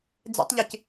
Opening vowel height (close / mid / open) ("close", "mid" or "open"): mid